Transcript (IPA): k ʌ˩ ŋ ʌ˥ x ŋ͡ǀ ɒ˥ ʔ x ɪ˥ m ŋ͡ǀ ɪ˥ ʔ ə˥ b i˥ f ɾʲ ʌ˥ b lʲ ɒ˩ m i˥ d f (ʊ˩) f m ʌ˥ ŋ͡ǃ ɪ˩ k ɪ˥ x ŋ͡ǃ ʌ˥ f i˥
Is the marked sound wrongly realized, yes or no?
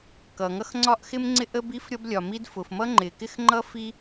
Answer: no